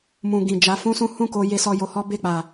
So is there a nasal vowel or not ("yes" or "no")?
yes